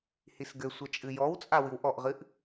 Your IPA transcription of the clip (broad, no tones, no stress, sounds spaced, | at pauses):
h i s ɡ ɘ sʷ ɐ t͡ʃʼ ɨ j ɔ w t͡sʼ a w ɨ w ʔ ɔ ʔ ʁ ɨ ʔ